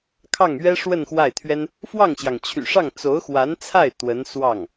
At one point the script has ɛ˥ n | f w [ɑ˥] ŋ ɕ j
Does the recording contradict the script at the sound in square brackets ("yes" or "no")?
yes